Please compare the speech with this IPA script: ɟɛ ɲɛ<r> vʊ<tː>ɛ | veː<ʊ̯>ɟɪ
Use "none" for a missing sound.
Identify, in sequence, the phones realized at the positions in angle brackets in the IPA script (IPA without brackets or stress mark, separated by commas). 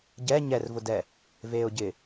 r, d, ʊ̯